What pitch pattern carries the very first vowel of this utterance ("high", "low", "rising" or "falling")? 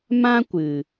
high